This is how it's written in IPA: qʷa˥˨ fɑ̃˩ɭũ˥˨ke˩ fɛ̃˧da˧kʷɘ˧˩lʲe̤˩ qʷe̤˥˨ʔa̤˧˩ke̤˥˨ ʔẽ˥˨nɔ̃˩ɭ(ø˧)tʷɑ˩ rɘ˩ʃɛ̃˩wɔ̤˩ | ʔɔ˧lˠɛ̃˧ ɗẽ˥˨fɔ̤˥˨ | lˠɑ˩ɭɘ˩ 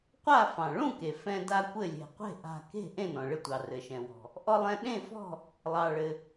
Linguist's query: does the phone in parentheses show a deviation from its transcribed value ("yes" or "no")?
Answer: yes